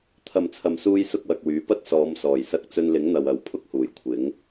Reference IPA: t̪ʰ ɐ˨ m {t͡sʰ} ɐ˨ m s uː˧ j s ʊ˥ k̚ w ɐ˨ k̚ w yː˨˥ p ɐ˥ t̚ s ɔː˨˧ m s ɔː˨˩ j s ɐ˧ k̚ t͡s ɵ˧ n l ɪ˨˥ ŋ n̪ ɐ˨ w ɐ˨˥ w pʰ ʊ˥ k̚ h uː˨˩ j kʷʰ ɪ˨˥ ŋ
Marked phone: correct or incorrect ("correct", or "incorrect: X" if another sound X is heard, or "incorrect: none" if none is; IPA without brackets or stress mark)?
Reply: correct